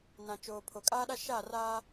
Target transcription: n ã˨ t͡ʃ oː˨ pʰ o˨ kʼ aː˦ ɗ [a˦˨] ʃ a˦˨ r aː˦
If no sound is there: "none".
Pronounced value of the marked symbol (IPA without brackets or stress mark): a˦